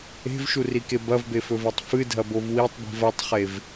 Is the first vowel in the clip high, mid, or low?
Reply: mid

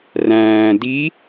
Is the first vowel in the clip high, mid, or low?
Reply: low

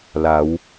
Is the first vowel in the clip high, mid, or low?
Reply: low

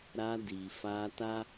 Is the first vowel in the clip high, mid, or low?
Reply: low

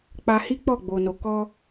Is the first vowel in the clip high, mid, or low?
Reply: low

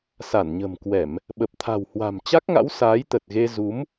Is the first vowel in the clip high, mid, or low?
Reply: low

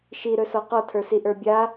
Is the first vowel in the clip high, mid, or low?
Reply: high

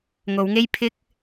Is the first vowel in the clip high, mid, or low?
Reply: mid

